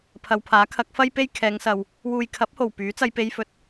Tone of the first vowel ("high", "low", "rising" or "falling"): low